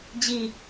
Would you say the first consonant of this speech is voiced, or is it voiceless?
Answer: voiced